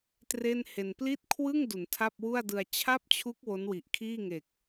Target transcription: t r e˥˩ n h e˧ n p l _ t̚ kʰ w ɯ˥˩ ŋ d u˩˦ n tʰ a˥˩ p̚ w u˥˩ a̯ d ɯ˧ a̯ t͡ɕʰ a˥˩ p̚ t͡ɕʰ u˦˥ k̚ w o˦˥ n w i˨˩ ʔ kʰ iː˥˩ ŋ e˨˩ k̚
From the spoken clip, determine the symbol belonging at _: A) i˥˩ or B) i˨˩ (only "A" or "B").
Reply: A